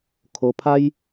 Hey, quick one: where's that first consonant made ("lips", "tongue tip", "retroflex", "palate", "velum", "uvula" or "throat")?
velum